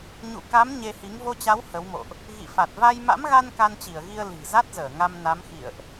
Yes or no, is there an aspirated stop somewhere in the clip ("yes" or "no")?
no